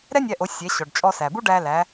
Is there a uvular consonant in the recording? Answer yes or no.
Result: no